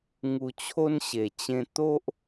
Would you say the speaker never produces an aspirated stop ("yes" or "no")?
no